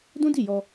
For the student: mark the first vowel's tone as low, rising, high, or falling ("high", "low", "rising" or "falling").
high